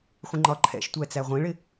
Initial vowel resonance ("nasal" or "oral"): nasal